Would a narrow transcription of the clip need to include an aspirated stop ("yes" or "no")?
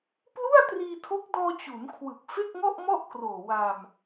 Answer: yes